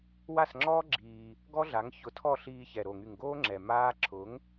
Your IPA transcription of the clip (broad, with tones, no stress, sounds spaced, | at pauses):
w a˦˨ s ŋ͡ǁ ɔː˦ ɡ͡ǁ iː˧ | ɡ ɔ˦ ɮ a˨˦ ŋ ç ʊ˨˦ tʰ ɔ˦˨ ɬ iː˧ ç ɛ˨ ɾ o˨ ŋ y˨ ŋ ɡ oː˦ ŋ͡ǁ ɛ˨ m aː˦ ǁʰ ʊ˨˦ ŋ